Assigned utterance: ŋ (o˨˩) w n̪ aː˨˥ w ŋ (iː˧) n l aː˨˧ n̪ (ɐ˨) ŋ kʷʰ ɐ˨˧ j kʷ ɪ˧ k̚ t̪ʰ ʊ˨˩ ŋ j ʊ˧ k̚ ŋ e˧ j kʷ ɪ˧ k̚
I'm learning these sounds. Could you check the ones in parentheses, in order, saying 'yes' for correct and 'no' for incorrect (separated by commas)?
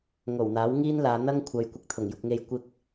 yes, no, no